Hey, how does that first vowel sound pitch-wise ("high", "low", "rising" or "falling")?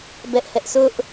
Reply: high